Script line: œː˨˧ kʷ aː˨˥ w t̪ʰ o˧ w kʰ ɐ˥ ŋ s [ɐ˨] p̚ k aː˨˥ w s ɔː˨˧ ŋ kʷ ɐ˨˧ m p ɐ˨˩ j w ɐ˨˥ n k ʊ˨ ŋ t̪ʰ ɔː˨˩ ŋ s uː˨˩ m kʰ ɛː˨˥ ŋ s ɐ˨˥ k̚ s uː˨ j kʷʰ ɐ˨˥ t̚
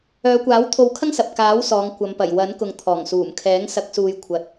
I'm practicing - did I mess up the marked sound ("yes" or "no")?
no